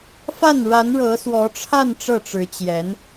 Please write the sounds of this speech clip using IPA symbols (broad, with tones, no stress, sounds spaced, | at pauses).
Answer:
f a˥˩ n ɻ a˧˥ n ɻ ɤ˧˥ s w ɔ˧˥ ʈ͡ʂʰ a˥˧ n ʈ͡ʂ ɤ˥˩ ʈ͡ʂ ɻ̩˧˥ t͡ɕ j ɛ˧˥ n